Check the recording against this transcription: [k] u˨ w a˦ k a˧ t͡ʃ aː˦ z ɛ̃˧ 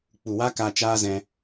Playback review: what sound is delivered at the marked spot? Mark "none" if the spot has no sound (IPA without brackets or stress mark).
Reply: k͡p